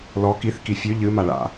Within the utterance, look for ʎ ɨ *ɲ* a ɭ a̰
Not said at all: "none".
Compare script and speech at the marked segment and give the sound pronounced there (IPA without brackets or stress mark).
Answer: m